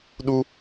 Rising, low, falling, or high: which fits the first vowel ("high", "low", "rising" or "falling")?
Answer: high